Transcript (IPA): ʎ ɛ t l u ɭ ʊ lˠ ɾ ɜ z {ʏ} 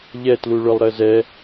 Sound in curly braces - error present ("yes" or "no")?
yes